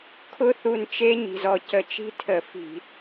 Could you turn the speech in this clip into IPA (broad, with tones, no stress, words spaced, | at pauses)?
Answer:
kʰʊ˦˥θu˧˩nt͡ʃe˦˥ ɲi̤˧˩zɔ˧˩ cə˧˩ t͡ʃi̤˦˥tʰə˧˩˧fi̤˧˩˧